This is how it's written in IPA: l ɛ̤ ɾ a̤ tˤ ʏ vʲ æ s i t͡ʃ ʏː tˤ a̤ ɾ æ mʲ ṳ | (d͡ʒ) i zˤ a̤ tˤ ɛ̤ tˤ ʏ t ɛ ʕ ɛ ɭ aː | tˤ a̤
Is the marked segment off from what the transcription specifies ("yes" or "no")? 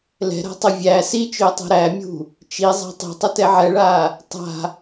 yes